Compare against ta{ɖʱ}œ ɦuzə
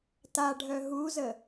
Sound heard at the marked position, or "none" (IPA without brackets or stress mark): ɖʱ